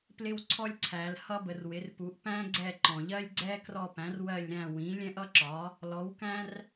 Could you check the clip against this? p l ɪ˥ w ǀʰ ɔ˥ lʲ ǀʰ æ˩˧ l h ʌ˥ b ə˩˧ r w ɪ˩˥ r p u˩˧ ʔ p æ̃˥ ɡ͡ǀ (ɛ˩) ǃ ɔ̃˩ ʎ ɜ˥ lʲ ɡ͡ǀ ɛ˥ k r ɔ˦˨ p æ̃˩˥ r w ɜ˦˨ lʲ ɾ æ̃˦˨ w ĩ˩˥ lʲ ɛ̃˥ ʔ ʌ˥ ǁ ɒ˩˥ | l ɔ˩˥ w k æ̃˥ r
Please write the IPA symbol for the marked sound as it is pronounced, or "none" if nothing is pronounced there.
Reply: ɛ˦˨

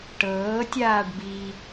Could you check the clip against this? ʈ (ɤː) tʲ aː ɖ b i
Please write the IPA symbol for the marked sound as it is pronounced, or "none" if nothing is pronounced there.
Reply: ɤː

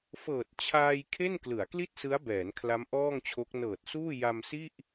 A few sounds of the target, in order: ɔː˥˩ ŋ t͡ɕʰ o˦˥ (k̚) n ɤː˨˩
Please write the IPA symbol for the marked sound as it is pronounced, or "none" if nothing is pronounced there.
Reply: k̚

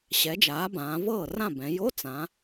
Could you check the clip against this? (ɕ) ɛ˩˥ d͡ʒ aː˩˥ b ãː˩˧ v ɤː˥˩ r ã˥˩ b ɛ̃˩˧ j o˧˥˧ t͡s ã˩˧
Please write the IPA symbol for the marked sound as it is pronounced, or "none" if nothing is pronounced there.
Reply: ɕ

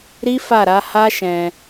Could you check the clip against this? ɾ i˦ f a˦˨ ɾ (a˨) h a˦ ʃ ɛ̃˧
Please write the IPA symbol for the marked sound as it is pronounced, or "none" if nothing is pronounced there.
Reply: a˨˦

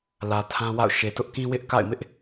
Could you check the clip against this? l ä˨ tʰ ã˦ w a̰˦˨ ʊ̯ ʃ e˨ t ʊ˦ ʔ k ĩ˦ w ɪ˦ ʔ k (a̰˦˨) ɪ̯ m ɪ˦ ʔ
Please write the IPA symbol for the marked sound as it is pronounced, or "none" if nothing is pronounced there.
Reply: a̰˦˨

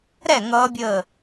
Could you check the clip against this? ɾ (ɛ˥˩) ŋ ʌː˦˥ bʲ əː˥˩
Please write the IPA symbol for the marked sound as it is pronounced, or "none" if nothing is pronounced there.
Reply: ɛ˥˩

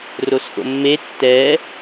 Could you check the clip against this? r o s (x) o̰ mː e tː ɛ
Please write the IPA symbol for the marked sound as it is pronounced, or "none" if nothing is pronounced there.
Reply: x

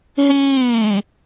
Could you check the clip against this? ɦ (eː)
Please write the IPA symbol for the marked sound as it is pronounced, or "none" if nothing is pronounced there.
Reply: iː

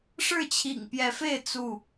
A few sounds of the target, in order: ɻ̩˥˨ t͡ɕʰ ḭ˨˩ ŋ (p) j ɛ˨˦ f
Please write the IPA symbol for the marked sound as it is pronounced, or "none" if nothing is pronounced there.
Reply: p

